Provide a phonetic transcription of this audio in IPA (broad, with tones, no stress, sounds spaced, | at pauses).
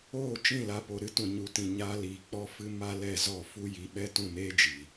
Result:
oː˦˨ t͡ʃ ĩ˦˨ l a˧ p o˨ ɾ ɨ˦ t ũ˨ ɲ u˨˦ t ĩ˨ ɲ aː˧ l iː˨ k͡p ɔ˦ f ɨ˦ m a˦ l ɛ˦˨ z ɔ˦˨ f u˦ j i˧ ɓ ɛ˦ t ũ˦˨ n eː˦ d͡ʒ iː˨